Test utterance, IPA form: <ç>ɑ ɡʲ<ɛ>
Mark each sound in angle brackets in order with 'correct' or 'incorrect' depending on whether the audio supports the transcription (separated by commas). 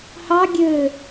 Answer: incorrect, incorrect